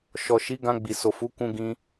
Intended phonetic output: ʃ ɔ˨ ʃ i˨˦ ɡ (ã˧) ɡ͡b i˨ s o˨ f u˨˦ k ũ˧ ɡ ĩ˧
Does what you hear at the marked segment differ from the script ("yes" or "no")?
no